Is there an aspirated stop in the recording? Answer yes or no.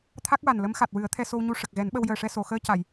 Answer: yes